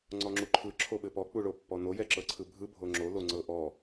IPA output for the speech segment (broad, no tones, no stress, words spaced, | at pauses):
ŋ͡ǀɔŋ͡ǁuǃʰɯ ǁʰoɓɘpɔ k͡puɭopːɔno jɛǁɤǀʰɯbʱɯ bʱoŋ͡ǁo loŋ͡ǀɤʔɔ